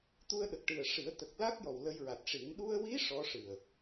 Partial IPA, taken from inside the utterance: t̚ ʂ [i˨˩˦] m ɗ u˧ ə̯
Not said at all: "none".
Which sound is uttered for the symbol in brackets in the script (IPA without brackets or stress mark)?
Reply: i˨˩˦